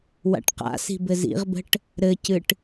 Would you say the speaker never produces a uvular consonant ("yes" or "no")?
no